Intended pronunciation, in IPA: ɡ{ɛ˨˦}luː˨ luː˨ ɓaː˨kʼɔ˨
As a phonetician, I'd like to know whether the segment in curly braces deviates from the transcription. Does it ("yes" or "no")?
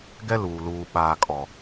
yes